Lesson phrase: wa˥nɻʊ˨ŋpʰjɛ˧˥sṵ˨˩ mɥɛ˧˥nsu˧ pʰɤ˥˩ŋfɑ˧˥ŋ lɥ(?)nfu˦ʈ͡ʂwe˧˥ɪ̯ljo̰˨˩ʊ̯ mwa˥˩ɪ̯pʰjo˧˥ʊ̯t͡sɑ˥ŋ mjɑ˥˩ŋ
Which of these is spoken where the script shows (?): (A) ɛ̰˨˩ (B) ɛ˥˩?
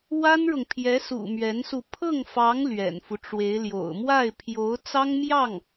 A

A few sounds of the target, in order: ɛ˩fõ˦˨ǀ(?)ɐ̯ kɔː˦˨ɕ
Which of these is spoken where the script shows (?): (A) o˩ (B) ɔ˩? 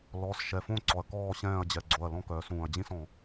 B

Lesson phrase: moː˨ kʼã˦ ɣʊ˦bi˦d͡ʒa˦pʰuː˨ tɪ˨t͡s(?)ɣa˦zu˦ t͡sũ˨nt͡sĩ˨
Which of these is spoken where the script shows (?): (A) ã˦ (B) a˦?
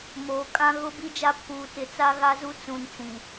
B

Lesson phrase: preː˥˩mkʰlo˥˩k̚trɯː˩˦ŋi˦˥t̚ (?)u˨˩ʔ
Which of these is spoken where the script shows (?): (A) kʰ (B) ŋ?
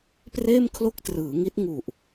B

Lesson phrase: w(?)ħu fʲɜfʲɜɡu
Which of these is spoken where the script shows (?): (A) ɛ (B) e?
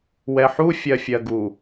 A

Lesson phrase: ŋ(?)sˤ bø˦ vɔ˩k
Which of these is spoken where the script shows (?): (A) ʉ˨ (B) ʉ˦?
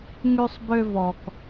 B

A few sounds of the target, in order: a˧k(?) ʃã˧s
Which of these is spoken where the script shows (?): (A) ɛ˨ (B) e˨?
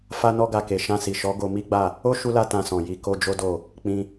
B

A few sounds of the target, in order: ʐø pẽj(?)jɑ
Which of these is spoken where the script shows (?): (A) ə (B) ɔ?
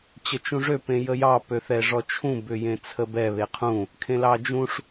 A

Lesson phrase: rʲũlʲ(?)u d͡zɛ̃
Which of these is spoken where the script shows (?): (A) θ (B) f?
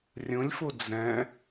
B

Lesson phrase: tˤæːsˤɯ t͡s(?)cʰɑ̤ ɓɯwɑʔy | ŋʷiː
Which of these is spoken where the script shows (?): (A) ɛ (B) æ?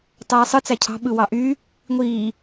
B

